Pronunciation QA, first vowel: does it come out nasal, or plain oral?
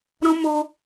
nasal